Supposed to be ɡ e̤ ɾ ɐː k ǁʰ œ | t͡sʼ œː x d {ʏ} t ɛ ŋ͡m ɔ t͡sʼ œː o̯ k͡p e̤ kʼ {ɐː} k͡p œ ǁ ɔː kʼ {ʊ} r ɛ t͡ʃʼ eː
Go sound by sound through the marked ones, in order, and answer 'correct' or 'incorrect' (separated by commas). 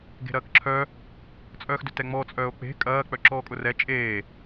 correct, correct, correct